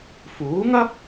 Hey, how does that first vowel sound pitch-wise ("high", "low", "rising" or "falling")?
rising